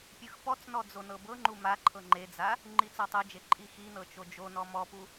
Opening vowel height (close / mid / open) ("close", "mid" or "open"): close